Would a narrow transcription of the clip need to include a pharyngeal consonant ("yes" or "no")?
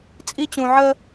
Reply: yes